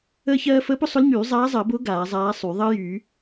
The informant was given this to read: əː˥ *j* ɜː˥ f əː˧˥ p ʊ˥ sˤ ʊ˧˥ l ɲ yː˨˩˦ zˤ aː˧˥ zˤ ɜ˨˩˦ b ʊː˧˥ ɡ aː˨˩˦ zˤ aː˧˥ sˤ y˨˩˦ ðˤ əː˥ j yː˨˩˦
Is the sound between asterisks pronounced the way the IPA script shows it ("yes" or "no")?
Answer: no